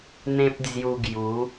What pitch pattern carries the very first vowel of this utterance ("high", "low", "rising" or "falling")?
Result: high